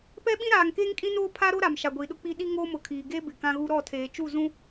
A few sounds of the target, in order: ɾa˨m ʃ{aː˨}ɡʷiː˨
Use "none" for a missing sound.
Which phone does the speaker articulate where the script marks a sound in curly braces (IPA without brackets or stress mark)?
a˨